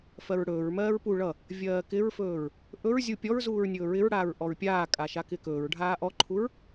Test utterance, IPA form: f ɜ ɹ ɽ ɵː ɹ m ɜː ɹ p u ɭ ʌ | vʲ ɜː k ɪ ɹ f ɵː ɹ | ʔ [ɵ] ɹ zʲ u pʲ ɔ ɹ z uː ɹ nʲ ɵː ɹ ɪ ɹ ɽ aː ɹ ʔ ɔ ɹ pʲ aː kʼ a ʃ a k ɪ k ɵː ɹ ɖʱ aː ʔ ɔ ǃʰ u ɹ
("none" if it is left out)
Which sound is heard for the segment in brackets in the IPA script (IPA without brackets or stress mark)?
ɵ